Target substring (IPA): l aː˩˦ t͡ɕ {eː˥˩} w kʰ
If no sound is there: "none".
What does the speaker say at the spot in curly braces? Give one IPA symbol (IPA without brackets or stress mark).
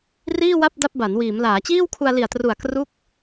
iː˥˩